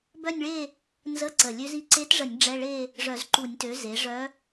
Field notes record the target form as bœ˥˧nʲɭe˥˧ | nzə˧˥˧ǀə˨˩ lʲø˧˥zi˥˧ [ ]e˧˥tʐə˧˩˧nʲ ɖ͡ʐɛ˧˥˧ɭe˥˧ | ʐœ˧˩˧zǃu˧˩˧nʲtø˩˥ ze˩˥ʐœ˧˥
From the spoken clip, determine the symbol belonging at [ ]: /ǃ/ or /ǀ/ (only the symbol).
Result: ǀ